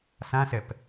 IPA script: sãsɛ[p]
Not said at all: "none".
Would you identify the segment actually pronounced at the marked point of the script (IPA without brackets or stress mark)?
p